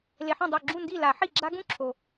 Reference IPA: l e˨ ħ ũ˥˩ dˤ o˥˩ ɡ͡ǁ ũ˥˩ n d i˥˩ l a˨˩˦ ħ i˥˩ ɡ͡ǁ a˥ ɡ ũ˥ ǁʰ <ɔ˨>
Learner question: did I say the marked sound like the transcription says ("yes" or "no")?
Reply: no